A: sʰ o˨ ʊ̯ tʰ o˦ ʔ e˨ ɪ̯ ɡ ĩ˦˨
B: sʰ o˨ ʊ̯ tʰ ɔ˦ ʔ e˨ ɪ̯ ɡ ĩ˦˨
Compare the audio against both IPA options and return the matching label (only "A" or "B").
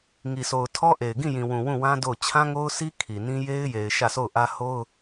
B